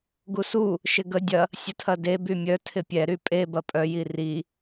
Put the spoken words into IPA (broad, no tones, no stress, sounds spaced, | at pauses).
ɡ u s u | ʃ ɪ ɡ ə dʲ ɐ | sʲ ə tʰ ɐ d e b y mʲ œ tʰ ɪ pʲ ɛ ɾ y pʼ e b ɐ pʼ œ j i r i